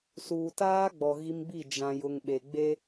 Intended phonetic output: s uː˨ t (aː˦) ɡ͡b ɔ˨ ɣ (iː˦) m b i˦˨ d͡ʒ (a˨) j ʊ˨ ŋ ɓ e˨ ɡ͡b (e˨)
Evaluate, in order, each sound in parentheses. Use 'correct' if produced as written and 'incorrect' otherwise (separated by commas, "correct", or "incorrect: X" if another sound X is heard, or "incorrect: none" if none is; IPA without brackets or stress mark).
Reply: correct, incorrect: i˦, incorrect: ã˨, incorrect: e˦